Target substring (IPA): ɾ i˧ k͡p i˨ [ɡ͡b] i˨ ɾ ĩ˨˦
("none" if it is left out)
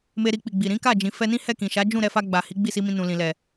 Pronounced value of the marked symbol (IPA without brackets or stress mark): ɡ͡b